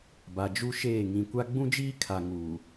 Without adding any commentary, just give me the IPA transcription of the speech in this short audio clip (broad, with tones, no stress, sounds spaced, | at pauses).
b a˨ d͡ʒ u˦ ʃ eː˦˨ ŋ ĩ˨ kʷ a˦ ɡ͡b ũ˦ d͡ʒ iː˦ kʰ a˨ ŋ uː˨